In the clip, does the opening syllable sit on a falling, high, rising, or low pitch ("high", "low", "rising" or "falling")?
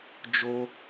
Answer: high